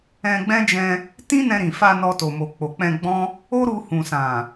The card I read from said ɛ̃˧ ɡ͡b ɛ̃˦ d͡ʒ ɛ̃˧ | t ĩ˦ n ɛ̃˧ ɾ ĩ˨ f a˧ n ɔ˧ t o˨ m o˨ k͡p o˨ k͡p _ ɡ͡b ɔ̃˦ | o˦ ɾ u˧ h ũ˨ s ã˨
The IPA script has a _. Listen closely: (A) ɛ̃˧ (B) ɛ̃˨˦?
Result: A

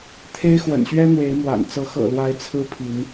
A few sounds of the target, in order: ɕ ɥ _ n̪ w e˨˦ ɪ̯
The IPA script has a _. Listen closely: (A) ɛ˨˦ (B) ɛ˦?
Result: B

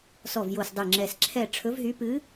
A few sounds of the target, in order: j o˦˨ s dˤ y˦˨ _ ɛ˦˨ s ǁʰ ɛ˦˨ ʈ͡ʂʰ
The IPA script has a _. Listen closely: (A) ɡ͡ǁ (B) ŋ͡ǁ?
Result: B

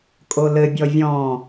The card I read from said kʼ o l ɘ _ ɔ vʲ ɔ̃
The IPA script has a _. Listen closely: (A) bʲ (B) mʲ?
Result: A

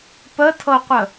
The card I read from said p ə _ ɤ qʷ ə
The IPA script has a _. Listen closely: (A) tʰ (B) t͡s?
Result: A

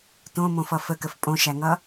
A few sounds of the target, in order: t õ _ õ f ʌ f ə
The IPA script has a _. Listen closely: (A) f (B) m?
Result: B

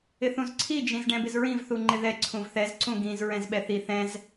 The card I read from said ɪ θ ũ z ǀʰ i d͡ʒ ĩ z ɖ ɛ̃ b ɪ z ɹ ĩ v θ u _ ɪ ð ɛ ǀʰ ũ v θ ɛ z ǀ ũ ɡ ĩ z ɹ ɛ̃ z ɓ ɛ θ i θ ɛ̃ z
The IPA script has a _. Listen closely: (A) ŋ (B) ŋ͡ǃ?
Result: B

